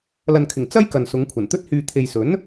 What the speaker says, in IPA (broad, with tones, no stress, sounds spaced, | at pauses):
l ɐ˨ n kʰ ɪ˨˩ ŋ t͡s ɐ˥ j k ɐ˨ n s ʊ˨˧ ŋ kʷʰ ɐ˨˩ n t̪ ɵ˥ t̚ h yː˧ t̪ʰ e˨ j s ɵ˨˥ n